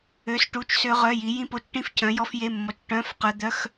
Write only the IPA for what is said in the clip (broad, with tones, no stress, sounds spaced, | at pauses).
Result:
ø˧˥˧ s ʈ u˧˥˧ t͡ʃ s ø˦˥ ʁ œ˧˥˧ j i˨˥ j ĩ˦˥ p o˧˥˧ t͡ʃ ʈ ĩ˦˥ f cʰ œ̃˨˥ j ɔ˦˥ f j e˧˥˧ mː ɔ˨˥ t͡ʃ ʈ œ̃˧˥˧ f q œ˦˥ d̪ œ˧˥˧ x